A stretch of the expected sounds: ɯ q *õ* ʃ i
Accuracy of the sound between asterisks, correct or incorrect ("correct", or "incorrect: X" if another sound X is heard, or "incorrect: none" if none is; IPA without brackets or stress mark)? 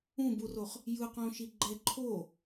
correct